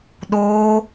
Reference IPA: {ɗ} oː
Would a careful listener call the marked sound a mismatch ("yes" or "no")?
no